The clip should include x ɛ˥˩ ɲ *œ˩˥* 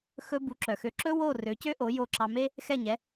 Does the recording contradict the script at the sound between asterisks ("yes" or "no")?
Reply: yes